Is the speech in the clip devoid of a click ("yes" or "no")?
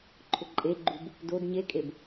no